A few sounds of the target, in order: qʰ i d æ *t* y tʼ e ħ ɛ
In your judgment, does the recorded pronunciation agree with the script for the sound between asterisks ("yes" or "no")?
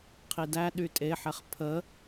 no